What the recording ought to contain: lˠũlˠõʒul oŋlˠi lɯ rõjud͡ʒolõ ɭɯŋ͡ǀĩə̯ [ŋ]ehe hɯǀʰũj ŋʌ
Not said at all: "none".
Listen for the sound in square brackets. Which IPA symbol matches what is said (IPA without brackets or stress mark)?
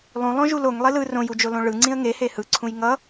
ŋ